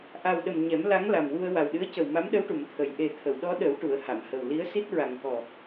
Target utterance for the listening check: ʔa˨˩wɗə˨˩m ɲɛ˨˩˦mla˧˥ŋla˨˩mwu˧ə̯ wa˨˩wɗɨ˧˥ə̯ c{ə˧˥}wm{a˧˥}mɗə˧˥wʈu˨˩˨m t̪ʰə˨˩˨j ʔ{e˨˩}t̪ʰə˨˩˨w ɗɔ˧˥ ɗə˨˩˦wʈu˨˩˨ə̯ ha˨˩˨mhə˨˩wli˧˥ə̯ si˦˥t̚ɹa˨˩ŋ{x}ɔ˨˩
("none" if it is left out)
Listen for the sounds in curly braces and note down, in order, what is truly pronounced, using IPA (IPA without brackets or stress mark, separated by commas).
ə˨˩, a˧˥, e˨˩, k